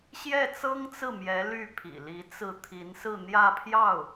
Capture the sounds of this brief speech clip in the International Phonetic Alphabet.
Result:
ɕjɛ˥˩t͡sɤ˥ŋt͡sɹ̩˥˩mjɛ˧˥ ly˥˩pʰḭ˨˩li˧˥t͡sɹ̩˥˩ t̪ʰi˧˥nsɹ̩˥˧ n̪jä˥˧pʰjɑ˥˩ʊ̯

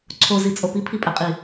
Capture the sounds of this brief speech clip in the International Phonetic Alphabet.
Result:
ǀʰozit͡sʼo pipʰipʼɛqʼi

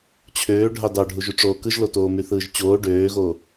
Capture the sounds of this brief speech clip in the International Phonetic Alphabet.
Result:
t͡ɕʰøː ɖʱɑdɑɖʱuʒy ʈ͡ʂoːkɯʒlotoː myθɯːʒt͡ɕoː ɖøːɣoː

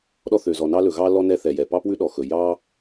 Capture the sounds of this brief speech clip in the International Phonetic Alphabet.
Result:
ɗɔ˥ θø˩zɔ˩nɑ˥lɵ˩ ɣɑ˥lɔ˥ nɛ˥θɛ˩jɛ˩ pɑ˥pwʉ˥ɗɔ˩xɵ˩ jɑ˥

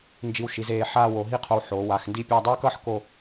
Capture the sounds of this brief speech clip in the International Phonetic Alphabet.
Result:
nd͡ʒi˧wʃi˩˧zeː˧ ħaː˥˧wo˩˧ɦi˥qʰo˧w ħoː˩˧ wa˩˧xndi˥˧pʲa˥˧ dˤuː˥kʌ˥ħ ko˥˧

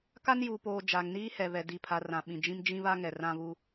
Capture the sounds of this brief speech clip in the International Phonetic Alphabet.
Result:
ka˦njuː˨poː˨ d͡ʒa˨ŋniː˦hɛ˨βɛ˨ di˨pʰa˨ rã˨ ɓĩ˨d͡ʒĩ˦m d͡ʒĩ˦βa˦ŋɛ˨ rã˦βu˦

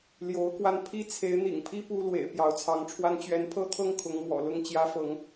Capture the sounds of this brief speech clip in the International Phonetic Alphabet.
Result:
ljo˨˦ʊ̯kwa˧n pʰi˦t͡sʰe˨˦ɪ̯n̪ḭ˨˩ŋpʰi˦ pu˦lwḛ˨˩ɪ̯ pjɑ˨˦ʊ̯t͡sʰɑ˨˦ŋʈ͡ʂʰwa˦n t͡ɕɥɛ˨˦npʰɤ˦t̪ʰɤ˦ŋ kʰʊ˨˦ŋ mwɔ̰˨˩lʊ˥˨ŋt͡ɕjä˦fɤ˨˦ŋ

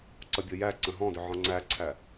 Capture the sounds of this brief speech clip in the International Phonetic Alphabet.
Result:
ǀʌbʲɤjæǀə̃ ɦɔ̃dʏ ʕɔ̃ŋ͡ǀæǀʰæ

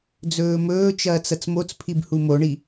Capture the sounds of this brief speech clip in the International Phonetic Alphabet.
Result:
d͡zɵːmɵːt͡ʃɐːt͡s ɐt͡smot͡spʰib humoɳi

